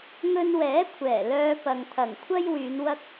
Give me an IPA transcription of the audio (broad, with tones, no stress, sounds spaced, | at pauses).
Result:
ŋ ɵ˧ n w ɛː˨˥ kʷʰ ɛː˨˩ l œː˧ p ɐ˨ ŋ t̪ʰ ɐ˨˩ ŋ kʷʰ ɐ˥ j w yː˨˧ n w ɐ˥ k̚